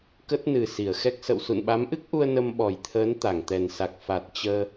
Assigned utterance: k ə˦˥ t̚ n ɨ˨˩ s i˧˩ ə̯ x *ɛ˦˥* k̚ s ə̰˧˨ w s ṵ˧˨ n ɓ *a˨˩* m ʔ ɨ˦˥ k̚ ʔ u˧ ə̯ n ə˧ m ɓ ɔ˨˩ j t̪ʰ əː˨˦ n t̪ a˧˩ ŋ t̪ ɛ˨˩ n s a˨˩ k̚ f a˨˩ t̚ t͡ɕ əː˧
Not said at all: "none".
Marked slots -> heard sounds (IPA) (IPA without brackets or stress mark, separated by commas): ɛ˦˥, a˨˦